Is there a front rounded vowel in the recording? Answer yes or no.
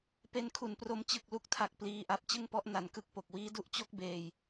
no